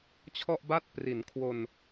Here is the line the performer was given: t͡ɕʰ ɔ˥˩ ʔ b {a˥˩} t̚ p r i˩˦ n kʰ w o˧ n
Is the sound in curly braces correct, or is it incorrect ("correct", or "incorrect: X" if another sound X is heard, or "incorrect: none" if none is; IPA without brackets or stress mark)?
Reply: correct